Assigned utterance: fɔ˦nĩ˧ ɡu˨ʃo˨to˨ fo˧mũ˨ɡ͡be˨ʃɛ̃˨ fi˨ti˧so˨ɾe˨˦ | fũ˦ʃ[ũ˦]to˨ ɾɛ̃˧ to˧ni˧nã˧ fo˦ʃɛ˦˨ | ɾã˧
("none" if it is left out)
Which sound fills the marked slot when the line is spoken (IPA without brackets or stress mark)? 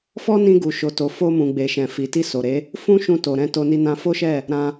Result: ũ˧